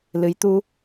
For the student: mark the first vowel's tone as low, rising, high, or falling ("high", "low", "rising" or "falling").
rising